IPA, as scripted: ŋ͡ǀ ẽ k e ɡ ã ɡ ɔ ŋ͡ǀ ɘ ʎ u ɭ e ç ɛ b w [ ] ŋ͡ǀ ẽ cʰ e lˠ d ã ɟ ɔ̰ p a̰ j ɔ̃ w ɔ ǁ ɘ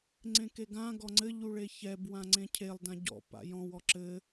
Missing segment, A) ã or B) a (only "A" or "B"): A